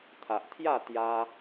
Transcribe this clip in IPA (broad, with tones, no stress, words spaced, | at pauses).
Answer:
t̪ʰa˨ʔt̪ʰja˥˧ t̪ja˧